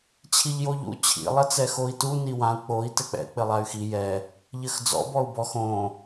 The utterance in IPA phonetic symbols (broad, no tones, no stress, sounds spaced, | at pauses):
t͡ɕʰ i ʎ j o ʎ ṵ t͡ɕʰ ḭ lˠ ɐ t͡s ɛ x o i̯ t u n i w ã u̯ k͡p o i̯ t ɘ k͡p ɛ̰ k͡p ɘ lˠ a y̯ x i j ɛ | ʎ ɘ x d͡z ɔ̰ b ɔ u̯ b ɔ x õ